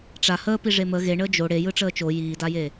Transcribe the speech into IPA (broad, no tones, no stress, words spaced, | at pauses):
ʈ͡ʂa həːpiʐe mə ɣeɳəː d͡ʒo ɽejɯʈ͡ʂəː t͡ʃo jiːdaje